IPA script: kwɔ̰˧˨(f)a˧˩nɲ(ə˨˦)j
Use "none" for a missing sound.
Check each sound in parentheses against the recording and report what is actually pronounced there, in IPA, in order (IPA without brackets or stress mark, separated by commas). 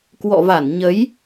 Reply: v, ə˨˦